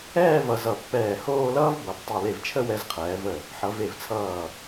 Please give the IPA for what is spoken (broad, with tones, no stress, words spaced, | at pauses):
ɛː˥˧ vʌ˧zʌ˧˩ pːɛː˧˩hoː˥˧lʌː˥v bʌ˩˧b tˤo˧˩le˧˩vt͡ʃʰə˥˧ wɛ˧zqʰɛː˩˧və˧˩ | ħʌ˩˧ve˧˩vt͡sʰʌː˧˩